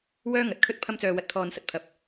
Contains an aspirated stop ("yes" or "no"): yes